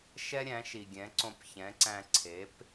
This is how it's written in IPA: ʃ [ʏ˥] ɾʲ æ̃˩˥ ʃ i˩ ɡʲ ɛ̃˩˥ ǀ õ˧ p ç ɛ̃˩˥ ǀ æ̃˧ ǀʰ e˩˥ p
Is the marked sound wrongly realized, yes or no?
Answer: yes